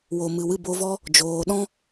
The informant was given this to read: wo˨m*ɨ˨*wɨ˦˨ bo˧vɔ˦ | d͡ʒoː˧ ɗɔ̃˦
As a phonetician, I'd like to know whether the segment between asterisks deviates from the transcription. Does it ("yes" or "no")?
no